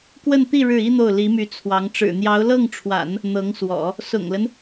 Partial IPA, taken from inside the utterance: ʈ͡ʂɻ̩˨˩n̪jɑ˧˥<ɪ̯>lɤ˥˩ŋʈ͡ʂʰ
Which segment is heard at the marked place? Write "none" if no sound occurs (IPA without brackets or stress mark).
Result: ʊ̯